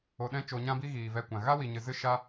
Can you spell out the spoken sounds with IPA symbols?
o˧ ɗ ɛ̃˦ t͡ʃ o˧ ɲ ã˦ b i˦ ɣ iː˨ v ɛ˧ kʷ ã˨ ɣ a˦ w i˨ ɲ ɨ˨ z ɨ˦ ʃ a˦

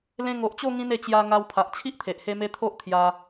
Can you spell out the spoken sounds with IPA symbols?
l ẽ˧ ŋ o˨ ʔ t͡ɕ o˥˧ ŋ ĩ˦ n e˧ t͡ɕ j a˧ ŋ a˧ w pʰ a˨ ʔ t͡ɕʰ i˦ ʔ t̪ʰ e˨ ʔ h e˦ m e˦ t̪ʰ o˦ ʔ t̪ʰ j a˧

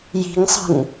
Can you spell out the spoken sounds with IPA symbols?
j i̤ ŋ sˤ ə̤ ŋ

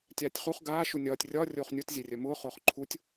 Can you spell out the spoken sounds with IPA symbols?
tʲ aː tʲ χ u χ ɡ aː ʃ u nʲ ɒː tʲ rʲ ɒ rʲ oː χ nʲ u t zʲ e rʲ œ m ʊː χ ʊː χ ǃʰ u tʲ

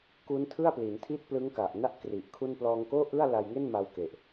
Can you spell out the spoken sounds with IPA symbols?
k u˦˥ n tʰ ɯ˥˩ a̯ p l i˩˦ n tʰ i˥˩ t̚ p l ɯ˦˥ ŋ k a˨˩ ʔ n a˥˩ ʔ k r i˨˩ ʔ kʰ u˥˩ n p l ɔː˧ ŋ k oː˥˩ ʔ ɯ˥˩ a̯ l a˧ j ŋ e˥˩ n m a˧ w k e˨˩ ʔ

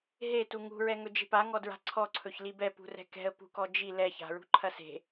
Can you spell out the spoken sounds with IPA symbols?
ɦ e t u ŋ ṳ ɹ ɛ ŋ ɵ d͡ʒ e̤ p a ŋ ɔ d ɹ a̤ ǀʰ ɔ ǀʰ ɵ ç l i b ɛ p ṳ r ɛ̤ k ɛ̤ ə̯ p ṳ k ɔ d͡ʒ i l ɛ ç a̤ ɹ ṳ ǃʰ ɐ s e̤

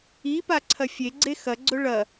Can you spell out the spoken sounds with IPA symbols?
i p a ǀʰ ɐ fʲ e ɡ͡ǀ e x ɐ ɡ͡ǀ ɵ ɭ ɐ

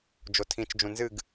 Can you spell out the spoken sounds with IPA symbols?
d͡ʒ o tʰ ĩ t͡ʃ d͡ʒ ũ n z ɨ ɡ

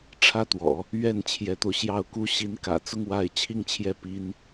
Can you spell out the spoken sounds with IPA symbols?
ʈ͡ʂʰ ä˥˩ t̪ w ɔ̰˨˩˦ | ɥ ɛ˥˩ n t͡ɕʰ j ɛ˧˥ t̪ o˧ ʊ̯ ɕ j ɑ˥˩ ʊ̯ k u˥ ɕ i˧˥ n k ä̰˨˩ t͡s ʊ˥˧ ŋ w a˥˧ ɪ̯ t͡ɕʰ i˥˧ ŋ t͡ɕʰ j ɛ˥˩ p i˥ n

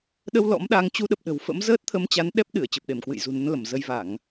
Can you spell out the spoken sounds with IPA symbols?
ɗ ə˧ w l ɔ̰˧˥ m ɗ a˧ ŋ t͡ɕ u˧ ɗ ə˨˩ p̚ ɗ ə̤˨˩ w f ə̰˧˥ m z əː˦˥ t̚ t̪ʰ ə˧ m t͡ɕ a˨˦ n ɗ ɛ˦˥ p̚ ɗ ɨ˧˩ ə̯ t͡ɕ ə˨˩ p̚ ɗ e˧˩ m k w ɨ̰˧˨ j z ṳ˨˩ n ə˨˦ n l ə˧˩ m z ə˧ j v a˧˩˨ ŋ

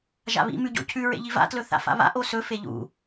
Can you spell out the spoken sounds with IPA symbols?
ʒ a̰ β ḭ m ʉ ɟ o̰ cʰ ʉ ɹ ḛ ʎ i v a̰ t l ɵ θ a̰ f a̰ β a̰ ʔ o s ɵ f e ʎ ṵ

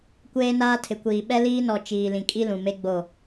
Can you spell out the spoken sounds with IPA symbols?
kʷ eː˦ n aː˦ tʰ ɪ˨ kʷ iː˨ ɓ ɛ˦ l iː˦ n ɔ˨ t͡ʃ iː˨ l ĩ˨ kʼ i˦ l ũ˨ m e˦ ɡ͡b o˦˨

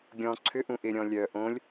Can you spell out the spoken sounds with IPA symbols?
ɡʲ ɔ̃ ǀʰ ʏ ʔ ũ ʔ ɪ ɾʲ ɔ̃ lʲ œ ʔ õ lʲ

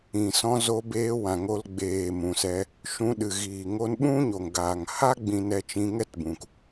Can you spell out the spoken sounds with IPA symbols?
ĩ˨ s ɔ̃˧ z o˧ b eː˧ w ã˨ ŋ o˧ l ɡ͡b eː˨ m ũ˨ s ɛ˧ | ʃ ũ˧ ɗ ɨ˨ ɣ iː˨ ŋ o˧ n ɓ ũ˦ ɲ o˨ ŋ ɡ a˨ ŋ h a˦ ɡ͡b ĩ˧ n ɛ˧ t͡ʃ ĩ˧ ŋ ɛ˦ t b ũ˨ k

